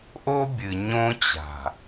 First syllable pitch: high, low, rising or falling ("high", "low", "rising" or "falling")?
high